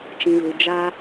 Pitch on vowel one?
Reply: low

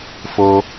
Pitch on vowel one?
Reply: high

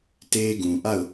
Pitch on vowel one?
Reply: high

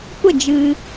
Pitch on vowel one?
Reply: falling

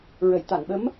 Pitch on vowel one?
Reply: low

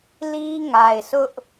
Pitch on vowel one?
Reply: high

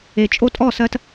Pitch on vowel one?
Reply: low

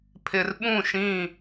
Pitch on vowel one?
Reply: low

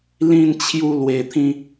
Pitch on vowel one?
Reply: high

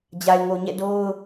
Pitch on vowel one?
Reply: low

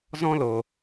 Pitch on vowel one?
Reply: high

